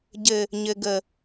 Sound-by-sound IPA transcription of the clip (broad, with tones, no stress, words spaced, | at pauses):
ɟɘ˦ | ɲɘ˦ɡə˦